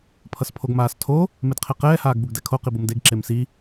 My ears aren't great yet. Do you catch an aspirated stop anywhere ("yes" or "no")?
yes